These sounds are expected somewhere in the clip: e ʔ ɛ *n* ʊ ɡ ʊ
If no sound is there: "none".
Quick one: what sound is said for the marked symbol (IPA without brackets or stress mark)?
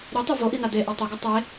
tˤ